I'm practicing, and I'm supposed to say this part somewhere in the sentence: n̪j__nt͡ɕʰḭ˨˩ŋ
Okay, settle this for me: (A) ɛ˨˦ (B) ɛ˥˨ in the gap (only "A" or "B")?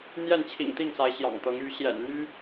B